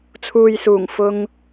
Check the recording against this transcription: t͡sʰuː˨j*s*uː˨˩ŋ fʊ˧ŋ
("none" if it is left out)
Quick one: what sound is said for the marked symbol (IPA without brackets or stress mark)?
s